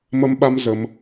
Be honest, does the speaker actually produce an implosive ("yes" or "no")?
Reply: yes